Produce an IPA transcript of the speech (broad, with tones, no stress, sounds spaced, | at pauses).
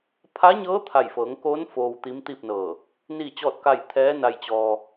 pʰ a˧˥ ɲ ɤː˧˥ t̪ʰ a˧˩ j f ɤː˩˧ ŋ k oː˧˥ n f oː˧ w t̪ i˧˥ m t̪ i˥˨ p̚ n ɤː˧˩ | n iː˥˨ t͡ɕ ɔː˥˨ t̚ k a˥˨ j t̪ʰ ɛː˧˥ n a˧ j t͡ɕ ɔː˧